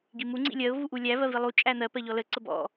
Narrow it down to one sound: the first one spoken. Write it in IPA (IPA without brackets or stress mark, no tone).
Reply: ɡ